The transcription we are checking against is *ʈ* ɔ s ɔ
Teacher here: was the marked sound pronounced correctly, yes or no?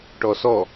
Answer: yes